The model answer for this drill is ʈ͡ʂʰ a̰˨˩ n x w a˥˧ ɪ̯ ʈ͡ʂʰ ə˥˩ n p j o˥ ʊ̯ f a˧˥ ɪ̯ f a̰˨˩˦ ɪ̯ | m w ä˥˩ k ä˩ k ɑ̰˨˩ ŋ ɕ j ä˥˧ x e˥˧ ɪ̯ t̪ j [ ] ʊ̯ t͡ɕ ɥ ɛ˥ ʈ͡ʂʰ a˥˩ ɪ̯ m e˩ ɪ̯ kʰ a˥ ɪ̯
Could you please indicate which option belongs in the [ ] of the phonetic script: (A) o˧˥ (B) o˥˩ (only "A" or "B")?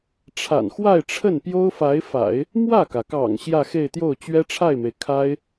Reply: B